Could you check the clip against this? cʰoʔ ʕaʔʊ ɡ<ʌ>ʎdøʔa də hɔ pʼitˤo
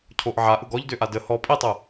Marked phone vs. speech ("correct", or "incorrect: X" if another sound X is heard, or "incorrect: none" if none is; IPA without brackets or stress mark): incorrect: ɔ